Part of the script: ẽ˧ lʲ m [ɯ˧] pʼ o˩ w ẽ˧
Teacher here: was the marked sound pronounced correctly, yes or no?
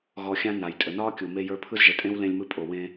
yes